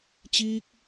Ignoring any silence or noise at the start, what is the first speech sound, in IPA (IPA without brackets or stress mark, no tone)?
t͡ɕ